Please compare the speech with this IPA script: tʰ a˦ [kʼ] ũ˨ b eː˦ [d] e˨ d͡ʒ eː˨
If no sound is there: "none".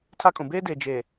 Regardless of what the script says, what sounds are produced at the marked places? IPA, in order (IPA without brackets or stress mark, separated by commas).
kʼ, d